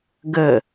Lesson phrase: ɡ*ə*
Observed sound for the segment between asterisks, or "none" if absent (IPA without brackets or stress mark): ə